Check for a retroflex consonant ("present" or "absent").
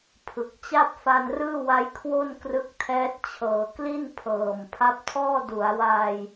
absent